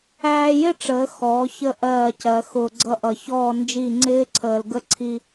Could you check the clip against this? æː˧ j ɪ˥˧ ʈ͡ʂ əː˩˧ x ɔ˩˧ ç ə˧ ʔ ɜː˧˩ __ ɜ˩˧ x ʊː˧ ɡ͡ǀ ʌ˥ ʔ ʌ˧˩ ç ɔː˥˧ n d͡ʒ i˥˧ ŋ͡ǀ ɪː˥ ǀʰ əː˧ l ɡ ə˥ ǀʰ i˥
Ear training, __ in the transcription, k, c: c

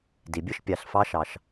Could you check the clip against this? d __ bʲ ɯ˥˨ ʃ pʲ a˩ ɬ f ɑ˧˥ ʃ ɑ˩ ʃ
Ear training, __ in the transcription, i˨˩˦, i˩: i˩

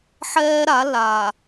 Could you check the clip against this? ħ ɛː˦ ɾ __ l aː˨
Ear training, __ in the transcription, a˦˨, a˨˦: a˨˦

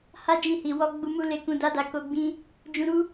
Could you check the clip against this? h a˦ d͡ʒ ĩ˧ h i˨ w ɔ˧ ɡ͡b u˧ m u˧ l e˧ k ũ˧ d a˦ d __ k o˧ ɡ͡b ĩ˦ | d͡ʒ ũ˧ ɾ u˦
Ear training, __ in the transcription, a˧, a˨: a˧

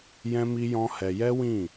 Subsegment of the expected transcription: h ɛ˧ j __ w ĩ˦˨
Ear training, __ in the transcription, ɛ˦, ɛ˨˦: ɛ˦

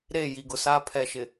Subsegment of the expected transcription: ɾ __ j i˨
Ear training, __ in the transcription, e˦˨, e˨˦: e˦˨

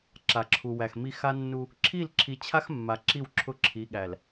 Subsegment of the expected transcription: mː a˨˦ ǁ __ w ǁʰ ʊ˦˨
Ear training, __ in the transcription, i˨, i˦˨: i˦˨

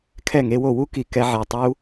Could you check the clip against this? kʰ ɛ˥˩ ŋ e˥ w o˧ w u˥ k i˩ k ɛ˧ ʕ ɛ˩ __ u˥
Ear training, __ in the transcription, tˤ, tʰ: tˤ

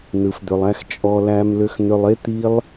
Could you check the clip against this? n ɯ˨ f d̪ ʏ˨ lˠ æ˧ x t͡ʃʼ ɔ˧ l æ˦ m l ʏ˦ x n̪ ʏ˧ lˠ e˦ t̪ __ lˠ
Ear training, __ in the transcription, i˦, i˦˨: i˦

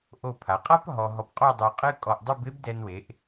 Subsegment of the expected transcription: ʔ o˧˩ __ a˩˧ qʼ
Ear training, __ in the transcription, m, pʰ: pʰ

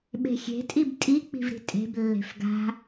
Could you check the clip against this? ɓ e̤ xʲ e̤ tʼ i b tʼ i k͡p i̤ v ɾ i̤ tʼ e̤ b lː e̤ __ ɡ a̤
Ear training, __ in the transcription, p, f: f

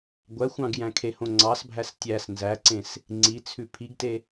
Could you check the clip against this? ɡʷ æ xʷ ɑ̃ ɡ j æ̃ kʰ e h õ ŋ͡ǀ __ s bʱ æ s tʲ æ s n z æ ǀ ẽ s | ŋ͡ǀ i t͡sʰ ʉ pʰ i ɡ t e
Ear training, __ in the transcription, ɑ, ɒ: ɑ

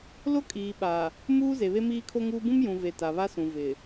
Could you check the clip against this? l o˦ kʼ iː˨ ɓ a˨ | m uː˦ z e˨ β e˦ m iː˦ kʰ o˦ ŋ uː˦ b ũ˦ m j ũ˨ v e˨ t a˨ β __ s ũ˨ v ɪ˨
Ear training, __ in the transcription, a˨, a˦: a˦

